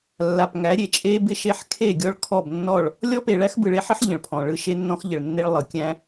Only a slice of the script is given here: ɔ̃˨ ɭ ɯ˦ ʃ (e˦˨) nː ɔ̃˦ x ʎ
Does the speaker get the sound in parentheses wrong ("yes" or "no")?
yes